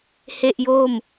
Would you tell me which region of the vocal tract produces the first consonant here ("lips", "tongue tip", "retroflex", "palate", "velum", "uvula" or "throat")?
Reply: throat